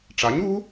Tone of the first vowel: rising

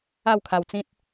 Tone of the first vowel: falling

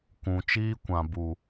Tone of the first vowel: low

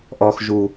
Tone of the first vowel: low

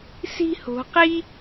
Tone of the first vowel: high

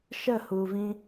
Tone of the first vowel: falling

